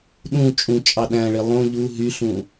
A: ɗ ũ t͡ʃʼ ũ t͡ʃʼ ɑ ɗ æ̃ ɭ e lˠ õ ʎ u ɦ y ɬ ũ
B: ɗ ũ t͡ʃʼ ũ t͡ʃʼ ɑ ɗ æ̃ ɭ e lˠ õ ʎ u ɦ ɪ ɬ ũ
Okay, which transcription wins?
A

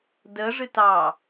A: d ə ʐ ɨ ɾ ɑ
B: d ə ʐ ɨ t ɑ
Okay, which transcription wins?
B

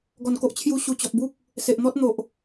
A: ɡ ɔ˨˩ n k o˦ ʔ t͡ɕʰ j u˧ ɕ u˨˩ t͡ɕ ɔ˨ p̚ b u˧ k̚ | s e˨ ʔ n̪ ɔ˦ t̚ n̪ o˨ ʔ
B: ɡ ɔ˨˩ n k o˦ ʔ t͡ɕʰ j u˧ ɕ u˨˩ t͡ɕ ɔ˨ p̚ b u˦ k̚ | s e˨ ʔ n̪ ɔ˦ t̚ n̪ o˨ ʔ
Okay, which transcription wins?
B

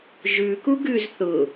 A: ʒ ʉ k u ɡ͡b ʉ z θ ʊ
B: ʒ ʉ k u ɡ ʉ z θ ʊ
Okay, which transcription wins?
B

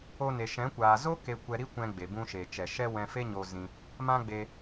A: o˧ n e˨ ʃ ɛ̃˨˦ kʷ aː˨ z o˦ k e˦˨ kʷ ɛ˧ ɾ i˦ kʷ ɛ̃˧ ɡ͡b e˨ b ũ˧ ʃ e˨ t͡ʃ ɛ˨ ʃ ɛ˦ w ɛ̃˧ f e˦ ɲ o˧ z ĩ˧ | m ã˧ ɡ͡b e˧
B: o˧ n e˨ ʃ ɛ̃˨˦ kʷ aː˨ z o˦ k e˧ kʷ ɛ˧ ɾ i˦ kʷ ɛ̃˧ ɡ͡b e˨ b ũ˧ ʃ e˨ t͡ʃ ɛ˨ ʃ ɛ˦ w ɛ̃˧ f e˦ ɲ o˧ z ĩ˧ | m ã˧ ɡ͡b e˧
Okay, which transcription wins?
B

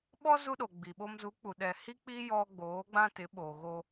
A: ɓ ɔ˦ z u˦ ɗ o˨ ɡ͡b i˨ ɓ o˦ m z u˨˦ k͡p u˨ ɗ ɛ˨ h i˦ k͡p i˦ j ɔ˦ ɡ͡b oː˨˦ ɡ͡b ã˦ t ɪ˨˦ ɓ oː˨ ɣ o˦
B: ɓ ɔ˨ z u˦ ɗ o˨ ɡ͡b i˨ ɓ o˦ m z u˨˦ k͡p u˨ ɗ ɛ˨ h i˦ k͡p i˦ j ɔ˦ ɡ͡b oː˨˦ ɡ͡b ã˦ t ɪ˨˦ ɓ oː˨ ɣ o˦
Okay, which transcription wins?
A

